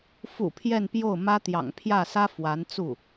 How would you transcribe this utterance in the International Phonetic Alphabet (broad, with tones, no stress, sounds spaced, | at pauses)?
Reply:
f ṵ˨˩ pʰ j ɛ˥˧ n p j o˥˩ ʊ̯ m ä˥ t̪ j ɑ̰˨˩ ŋ pʰ j ä˥˩ s ä˥ f w a˧˥ n t͡s u˥˩